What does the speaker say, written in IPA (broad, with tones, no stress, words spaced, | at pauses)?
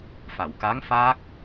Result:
fa˨˩˨wka˧˥ŋ faː˦˥k̚